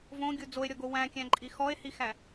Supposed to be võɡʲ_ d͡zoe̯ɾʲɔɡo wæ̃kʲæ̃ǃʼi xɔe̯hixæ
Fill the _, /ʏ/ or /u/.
u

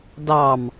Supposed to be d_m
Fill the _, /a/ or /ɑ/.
ɑ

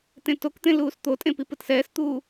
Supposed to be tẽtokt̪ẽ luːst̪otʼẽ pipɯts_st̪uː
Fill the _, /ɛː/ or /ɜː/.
ɛː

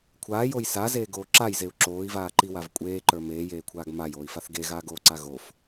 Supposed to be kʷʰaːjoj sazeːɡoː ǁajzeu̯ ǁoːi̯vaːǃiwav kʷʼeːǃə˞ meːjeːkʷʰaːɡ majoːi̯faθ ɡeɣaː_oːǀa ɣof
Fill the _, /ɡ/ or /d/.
ɡ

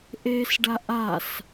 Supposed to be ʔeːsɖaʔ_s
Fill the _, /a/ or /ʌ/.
a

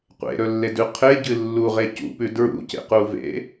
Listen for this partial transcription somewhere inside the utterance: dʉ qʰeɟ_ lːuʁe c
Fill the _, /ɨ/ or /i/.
ɨ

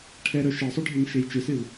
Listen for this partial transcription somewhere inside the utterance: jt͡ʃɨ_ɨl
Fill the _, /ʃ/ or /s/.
s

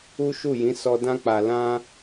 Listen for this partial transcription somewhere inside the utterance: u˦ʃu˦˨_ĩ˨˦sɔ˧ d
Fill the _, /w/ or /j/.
j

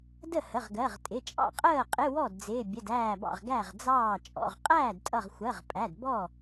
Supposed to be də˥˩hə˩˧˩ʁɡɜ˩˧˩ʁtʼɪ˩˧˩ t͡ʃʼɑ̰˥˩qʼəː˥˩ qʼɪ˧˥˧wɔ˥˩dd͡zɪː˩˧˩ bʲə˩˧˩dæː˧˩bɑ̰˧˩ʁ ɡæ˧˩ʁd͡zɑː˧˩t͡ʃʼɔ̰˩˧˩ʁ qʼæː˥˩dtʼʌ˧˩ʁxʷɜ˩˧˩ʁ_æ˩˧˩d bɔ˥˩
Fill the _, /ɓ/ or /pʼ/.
pʼ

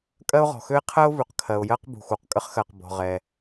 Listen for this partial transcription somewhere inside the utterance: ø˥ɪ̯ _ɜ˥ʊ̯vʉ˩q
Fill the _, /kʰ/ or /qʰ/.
qʰ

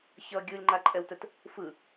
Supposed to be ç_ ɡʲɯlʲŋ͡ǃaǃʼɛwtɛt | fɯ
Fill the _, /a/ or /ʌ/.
ʌ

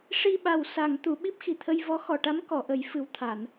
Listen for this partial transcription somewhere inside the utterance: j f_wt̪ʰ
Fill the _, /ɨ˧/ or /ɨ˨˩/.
ɨ˨˩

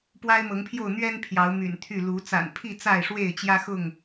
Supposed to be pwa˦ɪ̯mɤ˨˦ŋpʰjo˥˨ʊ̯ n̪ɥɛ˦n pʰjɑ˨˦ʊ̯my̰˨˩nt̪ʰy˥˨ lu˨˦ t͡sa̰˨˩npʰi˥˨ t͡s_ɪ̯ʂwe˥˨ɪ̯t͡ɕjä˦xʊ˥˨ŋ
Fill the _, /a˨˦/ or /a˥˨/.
a˥˨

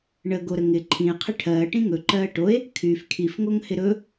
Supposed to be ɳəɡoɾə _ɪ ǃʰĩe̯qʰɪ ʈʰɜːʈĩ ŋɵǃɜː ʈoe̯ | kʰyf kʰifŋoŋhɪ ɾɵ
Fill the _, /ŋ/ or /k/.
ŋ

